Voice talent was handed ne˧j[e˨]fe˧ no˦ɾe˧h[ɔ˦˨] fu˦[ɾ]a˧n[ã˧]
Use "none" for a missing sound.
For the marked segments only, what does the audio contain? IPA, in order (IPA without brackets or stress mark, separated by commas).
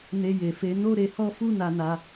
e˨, ɔ˦, n, a˧